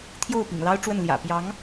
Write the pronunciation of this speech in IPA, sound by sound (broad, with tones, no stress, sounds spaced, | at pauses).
t̪ʰ j o˥˩ ʊ̯ p ḭ˨˩ ŋ l ɑ˥ ʊ̯ ʈ͡ʂ w ə˥˩ n l j ä̰˨˩ p j ɑ˧˥ ŋ